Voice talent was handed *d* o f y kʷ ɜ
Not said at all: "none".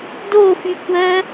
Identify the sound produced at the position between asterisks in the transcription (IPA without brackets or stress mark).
d